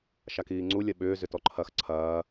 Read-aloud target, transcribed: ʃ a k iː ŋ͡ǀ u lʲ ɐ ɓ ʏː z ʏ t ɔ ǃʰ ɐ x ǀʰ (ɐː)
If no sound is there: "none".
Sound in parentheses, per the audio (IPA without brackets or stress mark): ɐː